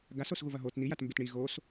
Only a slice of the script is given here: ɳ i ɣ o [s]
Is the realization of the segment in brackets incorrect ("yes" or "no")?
no